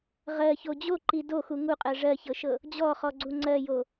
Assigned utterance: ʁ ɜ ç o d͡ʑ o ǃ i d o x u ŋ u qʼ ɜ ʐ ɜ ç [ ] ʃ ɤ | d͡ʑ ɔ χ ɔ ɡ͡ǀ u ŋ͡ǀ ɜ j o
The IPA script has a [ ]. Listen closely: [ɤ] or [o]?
ɤ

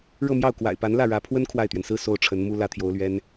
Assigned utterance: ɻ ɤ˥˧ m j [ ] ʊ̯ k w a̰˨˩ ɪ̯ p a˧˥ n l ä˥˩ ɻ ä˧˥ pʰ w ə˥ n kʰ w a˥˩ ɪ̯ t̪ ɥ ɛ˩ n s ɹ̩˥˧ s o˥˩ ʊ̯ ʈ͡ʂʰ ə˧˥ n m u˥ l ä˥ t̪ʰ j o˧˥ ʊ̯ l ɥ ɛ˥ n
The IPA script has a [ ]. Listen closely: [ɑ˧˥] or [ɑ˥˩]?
ɑ˥˩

